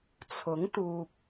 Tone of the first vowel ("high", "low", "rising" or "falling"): rising